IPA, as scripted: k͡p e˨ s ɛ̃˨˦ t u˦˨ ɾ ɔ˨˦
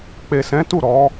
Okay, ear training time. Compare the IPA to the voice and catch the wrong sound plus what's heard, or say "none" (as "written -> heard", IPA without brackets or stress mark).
none